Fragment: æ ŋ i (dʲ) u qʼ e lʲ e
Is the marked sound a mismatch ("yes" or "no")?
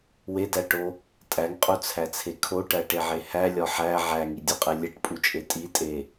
no